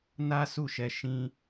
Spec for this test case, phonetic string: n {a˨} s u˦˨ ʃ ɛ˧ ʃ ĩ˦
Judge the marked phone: incorrect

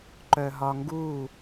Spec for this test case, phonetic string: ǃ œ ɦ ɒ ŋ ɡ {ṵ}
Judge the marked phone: incorrect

